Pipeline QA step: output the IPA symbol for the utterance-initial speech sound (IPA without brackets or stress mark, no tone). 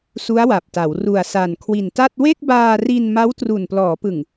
s